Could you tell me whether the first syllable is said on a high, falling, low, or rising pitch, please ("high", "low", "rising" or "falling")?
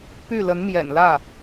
falling